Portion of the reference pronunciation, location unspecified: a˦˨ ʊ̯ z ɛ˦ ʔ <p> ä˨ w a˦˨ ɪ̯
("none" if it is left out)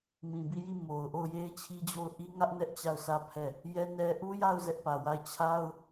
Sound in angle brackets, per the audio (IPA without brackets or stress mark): p